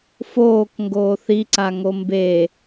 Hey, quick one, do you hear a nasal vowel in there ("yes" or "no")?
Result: no